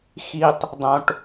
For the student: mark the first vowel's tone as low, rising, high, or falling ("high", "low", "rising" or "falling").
high